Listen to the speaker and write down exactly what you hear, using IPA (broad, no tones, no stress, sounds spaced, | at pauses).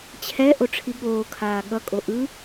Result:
t͡ɕʰ ɛ ʔ o ʈ͡ʂʰ i ɠ oː kʰ aː ɠ ʌ kʼ o ʔ ɯ